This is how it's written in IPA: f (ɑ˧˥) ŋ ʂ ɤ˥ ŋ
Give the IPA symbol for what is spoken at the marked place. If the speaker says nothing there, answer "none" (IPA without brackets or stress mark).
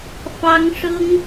ɑ˥